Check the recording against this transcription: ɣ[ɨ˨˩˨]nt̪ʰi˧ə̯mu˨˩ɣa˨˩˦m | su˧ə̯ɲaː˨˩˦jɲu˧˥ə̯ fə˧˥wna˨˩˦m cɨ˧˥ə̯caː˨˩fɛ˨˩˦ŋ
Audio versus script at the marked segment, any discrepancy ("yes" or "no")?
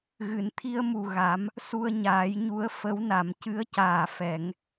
no